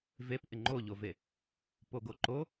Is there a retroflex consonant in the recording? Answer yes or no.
no